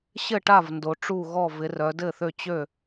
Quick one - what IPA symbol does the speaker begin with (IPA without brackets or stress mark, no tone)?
ɕ